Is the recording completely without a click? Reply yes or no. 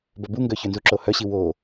no